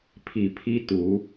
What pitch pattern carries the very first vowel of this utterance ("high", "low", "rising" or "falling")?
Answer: low